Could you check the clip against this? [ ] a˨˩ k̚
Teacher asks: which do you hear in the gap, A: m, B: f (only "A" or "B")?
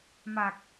A